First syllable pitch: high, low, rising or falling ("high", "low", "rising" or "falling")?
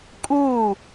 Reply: falling